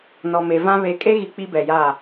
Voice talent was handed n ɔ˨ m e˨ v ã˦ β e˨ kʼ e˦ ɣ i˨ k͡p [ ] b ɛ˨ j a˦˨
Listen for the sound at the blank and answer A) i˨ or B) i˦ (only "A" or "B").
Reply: B